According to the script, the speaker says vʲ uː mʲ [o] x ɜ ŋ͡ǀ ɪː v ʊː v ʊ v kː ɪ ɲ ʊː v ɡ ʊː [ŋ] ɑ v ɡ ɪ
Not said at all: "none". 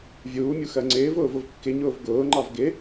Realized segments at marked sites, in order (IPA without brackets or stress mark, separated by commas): u, ŋ͡ǃ